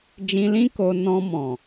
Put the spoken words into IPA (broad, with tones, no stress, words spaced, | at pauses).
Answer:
d͡ʒĩ˧lĩ˦ ko˧ nɔ̃˧ mɔ̃˨